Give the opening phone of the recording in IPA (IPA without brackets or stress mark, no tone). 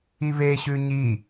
i